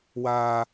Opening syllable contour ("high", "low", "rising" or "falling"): high